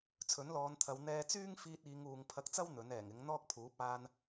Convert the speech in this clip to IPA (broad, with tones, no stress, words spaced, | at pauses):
t͡sʰɵ˨˥nlɔː˨˧nt̪ʰɐ˨˧w n̪ɛː˧t͡syː˥ŋ fiː˧t̚iː˨˧ŋuː˨ŋ pʰɐ˧k̚t͡sɐ˥w n̪ɵ˨˥nɛː˨˩ŋɪ˨˥ŋ n̪ɔː˥k̚pʰuː˨˥p̚ aː˧n